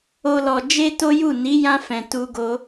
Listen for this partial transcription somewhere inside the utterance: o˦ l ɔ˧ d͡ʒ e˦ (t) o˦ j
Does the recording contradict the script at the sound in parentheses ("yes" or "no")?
no